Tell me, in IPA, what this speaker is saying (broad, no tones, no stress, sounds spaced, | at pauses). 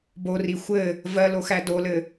b o r i xʷ ɘ | v ɜ l o x æ d o l ɘ